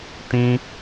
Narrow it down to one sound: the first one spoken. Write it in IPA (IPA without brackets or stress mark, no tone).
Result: t